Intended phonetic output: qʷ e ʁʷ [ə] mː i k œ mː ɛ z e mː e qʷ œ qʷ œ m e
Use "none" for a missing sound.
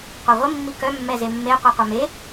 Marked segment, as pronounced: ə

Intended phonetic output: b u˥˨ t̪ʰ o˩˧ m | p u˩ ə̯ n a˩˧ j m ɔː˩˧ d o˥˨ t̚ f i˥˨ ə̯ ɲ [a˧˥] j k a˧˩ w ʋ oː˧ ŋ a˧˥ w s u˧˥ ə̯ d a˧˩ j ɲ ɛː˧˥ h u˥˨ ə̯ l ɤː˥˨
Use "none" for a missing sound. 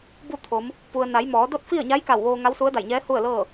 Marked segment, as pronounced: a˧˥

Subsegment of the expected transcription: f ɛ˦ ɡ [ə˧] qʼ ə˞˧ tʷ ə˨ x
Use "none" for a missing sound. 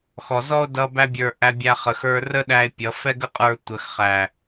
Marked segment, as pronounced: ə˦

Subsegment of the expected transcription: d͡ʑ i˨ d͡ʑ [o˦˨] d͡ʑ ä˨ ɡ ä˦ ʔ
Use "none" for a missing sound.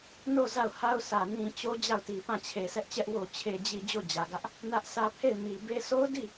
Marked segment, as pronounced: o˦˨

